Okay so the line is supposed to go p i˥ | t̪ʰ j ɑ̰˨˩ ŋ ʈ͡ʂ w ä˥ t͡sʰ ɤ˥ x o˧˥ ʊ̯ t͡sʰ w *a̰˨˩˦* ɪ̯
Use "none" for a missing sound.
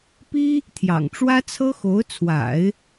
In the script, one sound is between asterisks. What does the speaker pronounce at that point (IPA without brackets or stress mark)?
a̰˨˩˦